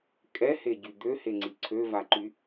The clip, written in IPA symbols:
kʼɛheɟy d̪øheŋ͡ǀi ǀʰøvaǃy

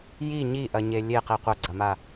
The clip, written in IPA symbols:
ji ɲiʔɐɲe lʲeqi qʷɐɡ͡ǀɐma

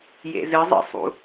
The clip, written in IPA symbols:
jḛzɨzˤḭsˤṵ

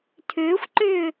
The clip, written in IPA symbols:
tʰʏːxʷǃʏː

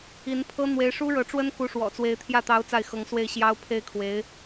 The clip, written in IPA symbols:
i˧˥npʰɤ˥ n̪we˧˥ɪ̯ʂu˥ɻɤ˧˥ʈ͡ʂwə˥n ku˧˥ʂwɔ̰˨˩t͡swe˧˥ɪ̯t̪ʰjä˥˩ t̪ɑ˧˥ʊ̯ t͡sa˥˩ɪ̯xɤ˧˥ŋ swe˥˩ɪ̯ɕjɑ˥ʊ̯ pʰe˥ɪ̯kʰwe˧˥ɪ̯

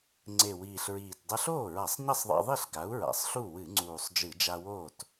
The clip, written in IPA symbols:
ŋ͡ǀe˨˩wiː˨˩ɬɹiː˨˩t dˤɐ˧ɬoː˥˩ɹa˧˩˧sˤ ɲɐ˥˩sˤðˤa̰˧ðˤi˥˩ɬ ɡa˩˥u̯ɹa̰˨˩sˤɬu˥˩ wɨ˧˩˧ŋ͡ǀuː˨˩sˤ d͡ʒɨ˧˩˧d͡ʒa˧woː˥˩t

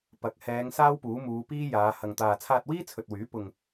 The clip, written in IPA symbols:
pɐ˨˥k̚ hɛː˨˧ŋ saː˥wpuː˨˥muː˨˧ piː˥jaː˨˧ hɐ˨ŋt̪aː˨ t͡sʰaː˧t̚wiː˥t͡sʰɵ˨t̚wyː˨˥ pʊ˨ŋ

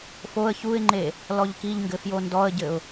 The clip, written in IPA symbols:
foə̯ çuɪ̯ŋ͡ǃe | lɔʎkiʎŋɡɘ fjondɔə̯ɟɘʊ̯

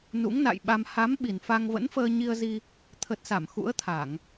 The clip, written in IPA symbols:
nṵ˧˥ŋna̰˧˨jɓa˧m ha˨˦m ɓi˨˩nfa˧ŋ və̰˧˥nfəː˧ɲi˧ə̯zi˧ | t̪ʰə˨˩t̚sa˧˩m xṵ˧˥ə̯t̪ʰa˧˩˨ŋ

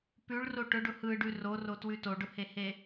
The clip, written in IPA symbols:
pʉɭro ʈʊɖʊ hɯɖʉ rorotwʉ toɖʊhehe

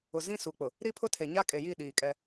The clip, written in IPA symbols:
ʊ˨zĩ˦su˨k͡pʊ˨ | ɾi˦pʰʊ˦tʰe˨ɲa˦ kʼe˨ji˦˨ ɗiː˨kʼɛ˦

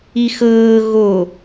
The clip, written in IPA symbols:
ixɤː ɣo

